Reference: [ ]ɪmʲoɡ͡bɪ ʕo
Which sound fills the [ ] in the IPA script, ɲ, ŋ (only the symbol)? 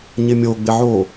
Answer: ɲ